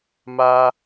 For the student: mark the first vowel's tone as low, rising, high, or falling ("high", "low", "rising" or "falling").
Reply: high